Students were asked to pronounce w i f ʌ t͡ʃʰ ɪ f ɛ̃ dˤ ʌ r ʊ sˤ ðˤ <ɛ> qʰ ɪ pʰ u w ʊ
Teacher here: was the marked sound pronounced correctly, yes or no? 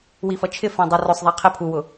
yes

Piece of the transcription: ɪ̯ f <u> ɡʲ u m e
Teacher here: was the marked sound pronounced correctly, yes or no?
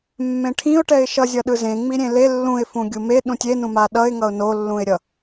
no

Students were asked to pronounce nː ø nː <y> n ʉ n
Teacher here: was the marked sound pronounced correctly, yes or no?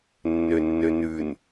no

